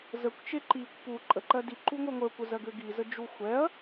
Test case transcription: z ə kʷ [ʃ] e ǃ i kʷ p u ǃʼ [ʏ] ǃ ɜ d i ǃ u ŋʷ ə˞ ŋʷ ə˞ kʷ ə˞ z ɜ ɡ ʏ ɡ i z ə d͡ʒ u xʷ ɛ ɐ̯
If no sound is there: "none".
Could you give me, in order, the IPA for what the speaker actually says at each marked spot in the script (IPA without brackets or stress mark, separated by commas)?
t͡ʃ, ə